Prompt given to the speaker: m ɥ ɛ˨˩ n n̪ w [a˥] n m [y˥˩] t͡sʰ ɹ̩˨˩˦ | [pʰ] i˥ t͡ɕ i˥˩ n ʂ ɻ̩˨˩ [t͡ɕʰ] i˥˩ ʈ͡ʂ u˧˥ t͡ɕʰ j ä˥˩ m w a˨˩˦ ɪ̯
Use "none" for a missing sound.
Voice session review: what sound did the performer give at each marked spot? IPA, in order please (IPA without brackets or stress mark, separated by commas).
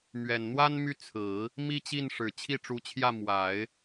a˥, y˥˩, m, t͡ɕʰ